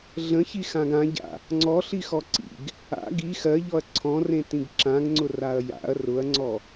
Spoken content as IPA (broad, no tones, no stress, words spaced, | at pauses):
ɮə̃çixãɡ ãɟa̰ | ŋ͡ǀɔɬixɔ ǀḭɡ | a̰ ɡi xɜʎɔɐ̯ ǀʰɔ̃rẽtĩɡ ǁãɡŋ͡ǀʊraɐ̯ ja̰ɐ̯ rʊɐ̯ŋ͡ǀɔ